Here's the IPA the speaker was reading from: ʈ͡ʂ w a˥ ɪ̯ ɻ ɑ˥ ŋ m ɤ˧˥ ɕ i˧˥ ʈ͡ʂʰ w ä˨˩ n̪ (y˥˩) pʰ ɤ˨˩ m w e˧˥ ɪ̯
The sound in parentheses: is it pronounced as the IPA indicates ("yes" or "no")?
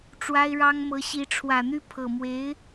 yes